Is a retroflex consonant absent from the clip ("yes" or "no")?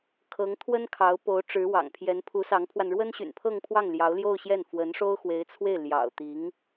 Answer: no